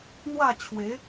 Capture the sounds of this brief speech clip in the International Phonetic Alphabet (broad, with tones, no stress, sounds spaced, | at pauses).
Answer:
n̪ w a˥˧ t͡ɕʰ w e˨˦